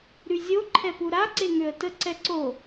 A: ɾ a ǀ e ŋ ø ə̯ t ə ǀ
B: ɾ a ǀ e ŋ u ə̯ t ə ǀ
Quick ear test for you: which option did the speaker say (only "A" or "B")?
A